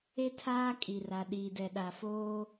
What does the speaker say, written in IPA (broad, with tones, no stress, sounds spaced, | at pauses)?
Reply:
e˦ tʰ aː˦ kʼ i˨ r a˨ ɗ iː˨ d ɛ˨ ɗ a˨ f oː˦